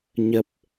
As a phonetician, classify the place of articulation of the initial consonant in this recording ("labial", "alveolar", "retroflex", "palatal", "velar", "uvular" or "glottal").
palatal